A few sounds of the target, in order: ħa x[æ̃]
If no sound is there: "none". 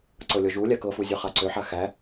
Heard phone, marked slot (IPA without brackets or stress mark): æ